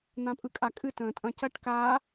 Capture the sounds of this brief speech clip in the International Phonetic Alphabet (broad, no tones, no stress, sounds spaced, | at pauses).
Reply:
n̪ ã pʼ ɯ kʼ a kʼ ɨ t ə̃ː tʼ ɐ̃ c ɐ ʈ k aː